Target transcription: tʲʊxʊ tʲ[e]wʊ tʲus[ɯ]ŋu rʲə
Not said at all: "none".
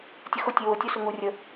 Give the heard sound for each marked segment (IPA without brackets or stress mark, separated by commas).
e, ʊ